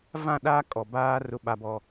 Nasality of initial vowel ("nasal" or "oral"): nasal